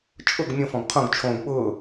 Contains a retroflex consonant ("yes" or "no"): no